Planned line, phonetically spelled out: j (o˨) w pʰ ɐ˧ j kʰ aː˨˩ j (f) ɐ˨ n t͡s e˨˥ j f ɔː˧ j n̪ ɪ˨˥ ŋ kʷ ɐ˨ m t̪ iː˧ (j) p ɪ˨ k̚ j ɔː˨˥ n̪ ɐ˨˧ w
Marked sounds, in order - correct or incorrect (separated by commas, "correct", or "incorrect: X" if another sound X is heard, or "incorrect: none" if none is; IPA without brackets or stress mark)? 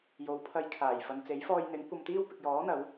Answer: incorrect: o˨˧, correct, incorrect: w